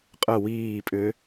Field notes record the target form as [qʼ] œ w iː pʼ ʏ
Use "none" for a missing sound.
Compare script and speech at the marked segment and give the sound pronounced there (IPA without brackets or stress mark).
qʼ